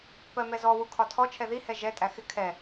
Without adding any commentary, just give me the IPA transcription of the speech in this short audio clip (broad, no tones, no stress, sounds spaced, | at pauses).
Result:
p ɜ m ɛ z ɔ w u kʰ ɒ tʰ ɔ t͡ʃʰ ɛ ð i h ɛ ʒ ɛ tʼ æ x ɪ kʰ ɛ